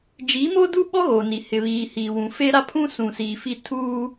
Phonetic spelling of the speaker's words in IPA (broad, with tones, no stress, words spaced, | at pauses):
d͡ʒi˨˦mo˦du˦ɓɔ˦ ɣo˨ni˨ hɪ˨βiː˨hiː˨wũ˨ fe˦ɾa˦pʰũ˦ sũ˨siː˨fi˦˨ tʰuː˦